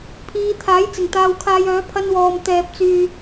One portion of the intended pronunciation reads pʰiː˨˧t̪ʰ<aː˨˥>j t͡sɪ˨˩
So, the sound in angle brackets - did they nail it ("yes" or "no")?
yes